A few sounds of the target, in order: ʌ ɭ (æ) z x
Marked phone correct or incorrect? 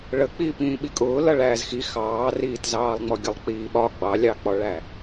incorrect